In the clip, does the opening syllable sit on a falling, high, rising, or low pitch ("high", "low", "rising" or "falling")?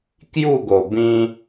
falling